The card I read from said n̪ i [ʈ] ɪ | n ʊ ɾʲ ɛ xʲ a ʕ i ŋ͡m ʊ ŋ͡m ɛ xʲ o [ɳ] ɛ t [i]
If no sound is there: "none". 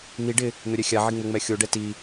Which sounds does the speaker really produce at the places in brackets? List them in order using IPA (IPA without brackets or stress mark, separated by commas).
ɖ, ɖ, i